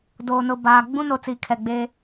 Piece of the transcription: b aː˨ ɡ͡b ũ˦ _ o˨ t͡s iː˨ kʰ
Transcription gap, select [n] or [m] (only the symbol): n